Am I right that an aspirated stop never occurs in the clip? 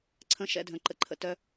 no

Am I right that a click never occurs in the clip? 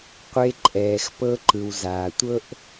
no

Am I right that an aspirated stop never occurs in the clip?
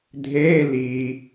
yes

